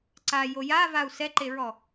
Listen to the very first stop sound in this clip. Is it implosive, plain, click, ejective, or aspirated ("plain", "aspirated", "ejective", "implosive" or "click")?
click